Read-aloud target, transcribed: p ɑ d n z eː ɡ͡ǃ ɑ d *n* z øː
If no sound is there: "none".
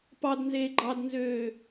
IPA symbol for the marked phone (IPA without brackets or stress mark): n